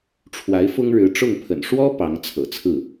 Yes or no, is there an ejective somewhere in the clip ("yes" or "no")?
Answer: no